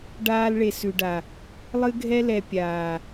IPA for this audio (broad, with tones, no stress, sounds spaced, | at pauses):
ɖ aː˦ l ɭ e˨ s ʉ˨ ɖ a˨ | lˠ ɨ˦ ɡʱ ɛ˦ l ɛ˨ pʲ aː˨